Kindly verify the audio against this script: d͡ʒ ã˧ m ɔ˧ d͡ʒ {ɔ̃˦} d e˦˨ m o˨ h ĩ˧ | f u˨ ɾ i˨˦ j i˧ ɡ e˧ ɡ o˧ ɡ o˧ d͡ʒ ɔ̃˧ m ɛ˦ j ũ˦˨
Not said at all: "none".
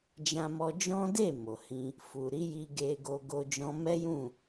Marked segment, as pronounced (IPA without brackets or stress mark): ɔ̃˦